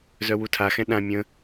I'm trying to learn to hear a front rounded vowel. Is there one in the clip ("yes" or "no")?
yes